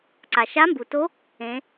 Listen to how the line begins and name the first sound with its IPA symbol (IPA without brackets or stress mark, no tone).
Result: ǀ